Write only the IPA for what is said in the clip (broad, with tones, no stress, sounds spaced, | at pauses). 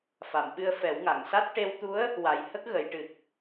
f a˨˩˨ m ɓ ɨ˧ ə̯ f ɛ˨˩˦ w ŋ a˨˩˨ ŋ s a˦˥ t̚ ʈ e˧ w t̪ u˧˥ ə̯ | w a˨˩˦ j h ə˦˥ k̚ ɣ ə˨˩˦ j ʈ ɨ˨˩ k̚